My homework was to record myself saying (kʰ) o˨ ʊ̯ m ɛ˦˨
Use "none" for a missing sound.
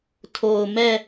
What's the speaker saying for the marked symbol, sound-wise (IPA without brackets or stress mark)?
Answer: tʰ